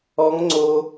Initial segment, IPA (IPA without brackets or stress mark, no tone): ɔ